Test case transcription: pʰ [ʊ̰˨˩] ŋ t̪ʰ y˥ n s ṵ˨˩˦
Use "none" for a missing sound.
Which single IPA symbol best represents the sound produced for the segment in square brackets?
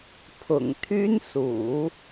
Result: ʊ̰˨˩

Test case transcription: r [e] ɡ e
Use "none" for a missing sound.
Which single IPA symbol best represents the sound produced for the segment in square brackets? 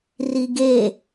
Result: i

